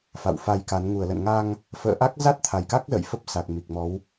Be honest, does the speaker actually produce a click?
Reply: no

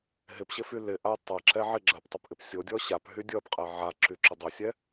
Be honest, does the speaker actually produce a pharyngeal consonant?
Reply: yes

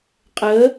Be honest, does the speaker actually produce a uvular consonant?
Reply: yes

